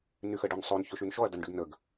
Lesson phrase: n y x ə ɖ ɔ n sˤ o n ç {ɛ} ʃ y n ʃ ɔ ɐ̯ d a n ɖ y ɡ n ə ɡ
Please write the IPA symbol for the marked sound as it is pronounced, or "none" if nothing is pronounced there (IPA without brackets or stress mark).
ø